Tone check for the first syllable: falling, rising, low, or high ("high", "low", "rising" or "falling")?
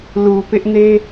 low